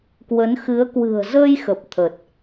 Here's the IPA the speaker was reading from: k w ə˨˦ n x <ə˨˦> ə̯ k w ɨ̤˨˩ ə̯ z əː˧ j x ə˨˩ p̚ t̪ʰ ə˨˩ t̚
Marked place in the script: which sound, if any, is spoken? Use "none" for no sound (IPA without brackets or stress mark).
ɨ˨˦